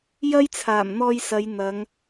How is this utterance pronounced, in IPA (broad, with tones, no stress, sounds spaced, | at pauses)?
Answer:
j ɐ˥ j t͡sʰ aː˨˩ m n̪ ɔː˧ j s ɐ˨˧ j n̪ ɐ˨˧ ŋ